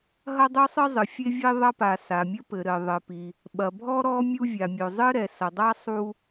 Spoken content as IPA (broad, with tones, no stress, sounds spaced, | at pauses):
ɦ ɐ˥ dˤ u˥ sˤ ɨ˥ zˤ ɨ˩ fʲ e˥ vʲ e˥ ðˤ ɐ˥ p a˩ s a˩ mʲ ɘ˥ p ɘ˩ ɾ ɘ˩ ðˤ ɘ˩ p i˩ | ɓ ɐ˩ bʱ ɔ˥ ɾ ɔ˥ mʲ u˥ vʲ a˩ mʲ o˩ zˤ ɨ˥ ɾ ɛ˩ s ɐ˩ dˤ a˥ sˤ u˥